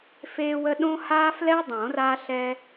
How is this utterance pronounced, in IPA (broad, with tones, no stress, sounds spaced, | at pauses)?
f eː˦ w ə˦ ɗ õ˦ h aː˦ f l ɛ˦ dˤ õ˨˩˦ r a˦ ɬ ɛ˦